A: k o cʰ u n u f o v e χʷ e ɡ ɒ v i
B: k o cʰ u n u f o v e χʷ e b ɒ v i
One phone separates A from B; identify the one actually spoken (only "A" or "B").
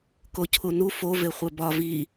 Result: B